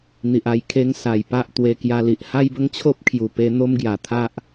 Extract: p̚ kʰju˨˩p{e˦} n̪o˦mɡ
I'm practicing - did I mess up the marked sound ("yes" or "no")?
yes